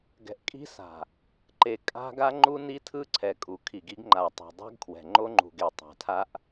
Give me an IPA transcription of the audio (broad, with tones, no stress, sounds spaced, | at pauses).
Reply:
ɡ ɛ̤˨ ʔ kʼ i̤˦ s a̤˨ | ǃ e˨ kʼ a̤˦ ɡ a˦ ŋ͡ǃ u˦ n i˦ tʰ ɯ˦ ǀʰ ɛ˨ kʼ u˨ kʰ i˨ ɡ i˦ ɡ ŋ͡ǃ a˨ tˤ ɛ̤˨ dˤ ɛ̤˦ ɡ kʰ w ɛ̤˨ ŋ͡ǃ o˦ ŋ͡ǃ ṳ˨ ɡ e˨ tˤ a̤˨ tʰ a˦ ʔ